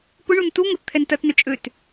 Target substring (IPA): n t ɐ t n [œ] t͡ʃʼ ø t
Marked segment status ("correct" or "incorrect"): correct